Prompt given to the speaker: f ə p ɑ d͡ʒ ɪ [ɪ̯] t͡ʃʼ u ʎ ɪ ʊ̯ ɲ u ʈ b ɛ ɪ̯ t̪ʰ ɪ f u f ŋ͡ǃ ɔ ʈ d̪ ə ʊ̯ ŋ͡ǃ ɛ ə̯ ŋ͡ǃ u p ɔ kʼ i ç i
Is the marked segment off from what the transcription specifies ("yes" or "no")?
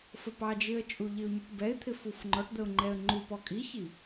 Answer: yes